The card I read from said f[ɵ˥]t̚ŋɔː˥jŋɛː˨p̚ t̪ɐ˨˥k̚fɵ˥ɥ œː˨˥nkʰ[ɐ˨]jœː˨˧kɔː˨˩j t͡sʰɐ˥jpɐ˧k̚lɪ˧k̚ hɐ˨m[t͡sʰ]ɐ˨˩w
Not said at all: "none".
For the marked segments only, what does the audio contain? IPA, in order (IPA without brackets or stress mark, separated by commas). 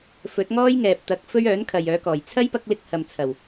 ɵ˨˥, ɐ˨, t͡sʰ